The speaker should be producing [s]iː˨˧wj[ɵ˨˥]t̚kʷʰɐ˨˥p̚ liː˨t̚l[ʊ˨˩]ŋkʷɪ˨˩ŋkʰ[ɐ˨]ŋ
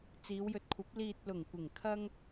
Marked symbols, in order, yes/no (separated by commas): no, yes, yes, no